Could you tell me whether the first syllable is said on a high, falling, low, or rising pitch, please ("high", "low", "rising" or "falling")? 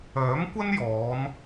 rising